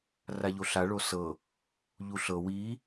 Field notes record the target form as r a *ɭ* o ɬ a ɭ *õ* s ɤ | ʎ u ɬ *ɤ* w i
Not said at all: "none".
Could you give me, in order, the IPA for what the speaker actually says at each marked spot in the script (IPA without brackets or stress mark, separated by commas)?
ʎ, o, ɤ